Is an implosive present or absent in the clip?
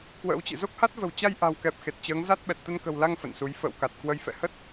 present